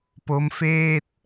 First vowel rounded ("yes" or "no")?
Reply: yes